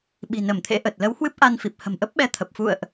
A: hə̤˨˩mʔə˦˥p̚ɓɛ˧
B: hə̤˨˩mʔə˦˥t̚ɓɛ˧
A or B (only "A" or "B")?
A